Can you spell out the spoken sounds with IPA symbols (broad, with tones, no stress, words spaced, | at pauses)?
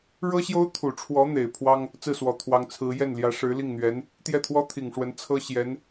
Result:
ɻɤ˥ɕjo˥ʊ̯ t̪ʰu˨˩ʈ͡ʂʰwɔ˧˥ n̪e˨˩ɪ̯ pʰwɑ˥ŋ | t͡sɹ̩˥˩swɔ˨˩ t̪ʰwɑ˧˥ŋt͡sʰɹ̩˧˥ jɛ˥˩nljä˧˥ ʂɻ̩˧˥li˥˩ŋn̪ɥɛ˧˥n | t̪jɛ˥˩t̪ʰwɔ˥t̪ʰi˨˩ŋʂwə˧˥n t͡sʰɤ˥ɕjɛ˧˥n